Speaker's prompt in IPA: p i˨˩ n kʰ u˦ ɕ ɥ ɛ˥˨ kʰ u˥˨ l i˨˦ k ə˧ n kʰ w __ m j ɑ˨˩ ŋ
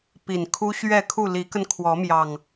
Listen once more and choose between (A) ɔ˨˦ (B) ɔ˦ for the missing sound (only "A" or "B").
A